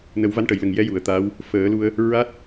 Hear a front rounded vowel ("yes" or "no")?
no